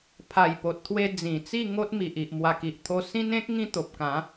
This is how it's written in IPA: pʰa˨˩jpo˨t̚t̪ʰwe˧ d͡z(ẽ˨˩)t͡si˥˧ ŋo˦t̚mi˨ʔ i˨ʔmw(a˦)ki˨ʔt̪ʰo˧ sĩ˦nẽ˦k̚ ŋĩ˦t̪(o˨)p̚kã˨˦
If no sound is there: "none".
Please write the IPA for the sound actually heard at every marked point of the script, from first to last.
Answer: ĩ˨˩, a˨˩, o˨

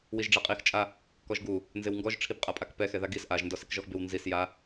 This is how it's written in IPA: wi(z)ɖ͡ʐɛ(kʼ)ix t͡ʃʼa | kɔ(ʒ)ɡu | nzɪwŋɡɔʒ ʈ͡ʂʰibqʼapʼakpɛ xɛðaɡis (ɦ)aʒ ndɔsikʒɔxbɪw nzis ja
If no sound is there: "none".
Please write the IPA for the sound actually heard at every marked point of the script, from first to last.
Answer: ʒ, qʼ, ʒ, ʔ

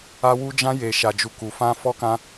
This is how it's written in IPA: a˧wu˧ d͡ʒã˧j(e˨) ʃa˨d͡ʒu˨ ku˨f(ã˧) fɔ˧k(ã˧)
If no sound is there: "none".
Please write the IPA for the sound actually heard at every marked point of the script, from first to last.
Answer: e˨, ã˧, ã˧

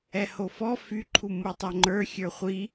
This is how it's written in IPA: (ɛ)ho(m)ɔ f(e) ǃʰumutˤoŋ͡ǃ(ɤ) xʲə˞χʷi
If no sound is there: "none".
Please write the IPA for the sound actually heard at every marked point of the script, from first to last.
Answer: ɛ, f, y, ə˞

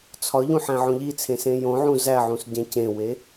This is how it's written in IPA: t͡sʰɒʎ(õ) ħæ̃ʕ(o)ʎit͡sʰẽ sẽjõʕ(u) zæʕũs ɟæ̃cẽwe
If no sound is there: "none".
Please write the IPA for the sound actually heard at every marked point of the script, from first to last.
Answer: ũ, õ, ũ

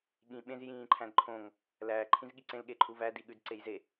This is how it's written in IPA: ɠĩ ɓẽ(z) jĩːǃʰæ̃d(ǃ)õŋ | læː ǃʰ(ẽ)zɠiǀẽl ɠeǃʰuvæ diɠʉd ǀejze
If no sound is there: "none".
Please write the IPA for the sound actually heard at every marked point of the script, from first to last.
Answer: z, ǃʰ, ĩ

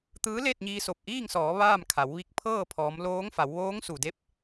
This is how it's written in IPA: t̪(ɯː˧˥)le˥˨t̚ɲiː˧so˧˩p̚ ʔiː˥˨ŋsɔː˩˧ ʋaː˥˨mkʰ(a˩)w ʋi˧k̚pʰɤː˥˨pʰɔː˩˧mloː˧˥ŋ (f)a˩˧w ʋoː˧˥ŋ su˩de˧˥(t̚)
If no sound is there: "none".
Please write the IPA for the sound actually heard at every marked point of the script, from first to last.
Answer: ɯː˧˥, a˩˧, f, p̚

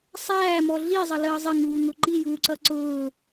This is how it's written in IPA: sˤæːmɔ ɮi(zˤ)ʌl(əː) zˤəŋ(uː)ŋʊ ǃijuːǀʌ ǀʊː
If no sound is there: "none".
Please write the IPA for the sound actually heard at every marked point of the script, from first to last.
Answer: zˤ, əː, uː

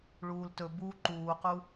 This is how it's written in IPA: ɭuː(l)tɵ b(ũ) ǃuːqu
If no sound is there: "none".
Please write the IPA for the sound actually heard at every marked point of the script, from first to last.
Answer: l, u

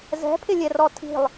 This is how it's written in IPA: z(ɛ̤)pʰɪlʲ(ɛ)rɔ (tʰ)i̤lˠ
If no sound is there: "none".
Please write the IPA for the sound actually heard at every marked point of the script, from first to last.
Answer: ɛ̤, ɛ, tʰ

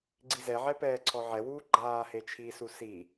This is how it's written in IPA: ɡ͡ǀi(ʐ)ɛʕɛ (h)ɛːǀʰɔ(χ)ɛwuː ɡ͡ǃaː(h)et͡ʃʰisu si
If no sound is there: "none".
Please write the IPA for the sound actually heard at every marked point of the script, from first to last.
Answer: z, p, ʕ, h

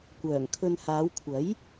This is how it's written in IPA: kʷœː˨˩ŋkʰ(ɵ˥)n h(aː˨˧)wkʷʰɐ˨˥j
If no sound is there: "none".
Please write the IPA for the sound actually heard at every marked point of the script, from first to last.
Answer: ɵ˧, aː˨˧

